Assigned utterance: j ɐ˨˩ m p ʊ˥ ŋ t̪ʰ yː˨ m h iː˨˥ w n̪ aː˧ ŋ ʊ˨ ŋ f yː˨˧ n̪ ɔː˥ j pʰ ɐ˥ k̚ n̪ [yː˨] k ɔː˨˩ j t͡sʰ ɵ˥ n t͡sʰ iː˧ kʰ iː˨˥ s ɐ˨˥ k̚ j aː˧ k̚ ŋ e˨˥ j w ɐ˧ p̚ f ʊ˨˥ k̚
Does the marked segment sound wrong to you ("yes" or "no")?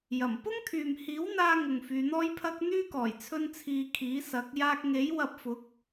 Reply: yes